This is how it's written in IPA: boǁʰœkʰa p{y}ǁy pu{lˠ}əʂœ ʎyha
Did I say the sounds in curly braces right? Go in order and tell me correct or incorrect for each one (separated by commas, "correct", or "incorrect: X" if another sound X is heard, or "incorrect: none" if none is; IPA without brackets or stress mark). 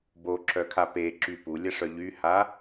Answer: incorrect: e, incorrect: lʲ